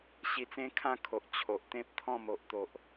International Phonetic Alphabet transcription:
ɕi˧t͡sẽ˦kʰã˥˧kʰo˨ʔ t͡ɕʰo˨ʔt̪ẽ˦p̚ t̪ʰɔ̃˥˧mo˨ʔt̪o˨ʔ

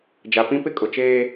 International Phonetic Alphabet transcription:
d͡ʒa˨pĩ˦pɪ˦ kʼʊ˨t͡ʃeː˦

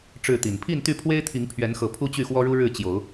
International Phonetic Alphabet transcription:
ʈ͡ʂɻ̩˥˨t̪i˨˩n pʰi˥˨nt̪y˥˨pʰwe˦ɪ̯t̪ʰi˨˦ŋ pʰɥɛ˨˦nxɤ˨˩ pʰu˦t͡ɕy˥˨xwɔ˦ɻu˦ ɻɻ̩˥˨t͡ɕjo˨˦ʊ̯

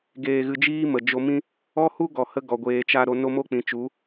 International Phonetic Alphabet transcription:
ɡeː˧ɣɨ˧d͡ʒiː˦ mə˨ d͡ʒo˧mĩ˦ | ɔ˦hu˦ɡɔ˨hə˧ ɡɔ˨ ɡʷeː˨t͡ʃa˧ ɾo˧no˦mo˦k͡pĩ˨ t͡ʃu˨˦

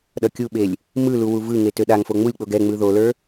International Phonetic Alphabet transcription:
ɗʌkʲuɓelʲ | mɯlu wuvɯŋe tøɗaŋfo ŋ͡mulʲk͡poɡ ɛ ŋ͡mɯðolə˞

